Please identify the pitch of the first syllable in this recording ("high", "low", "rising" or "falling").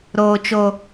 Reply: low